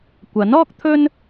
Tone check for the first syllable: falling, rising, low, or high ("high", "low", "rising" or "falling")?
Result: rising